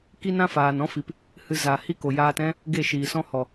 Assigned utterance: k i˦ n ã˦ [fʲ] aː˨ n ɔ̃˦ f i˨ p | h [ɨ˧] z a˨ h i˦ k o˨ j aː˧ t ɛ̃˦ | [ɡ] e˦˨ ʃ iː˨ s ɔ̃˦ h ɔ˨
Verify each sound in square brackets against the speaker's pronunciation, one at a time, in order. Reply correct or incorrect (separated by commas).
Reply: incorrect, correct, correct